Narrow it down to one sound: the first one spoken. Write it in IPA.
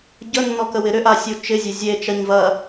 ɟ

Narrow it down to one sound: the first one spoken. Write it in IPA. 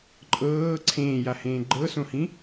ǃʼ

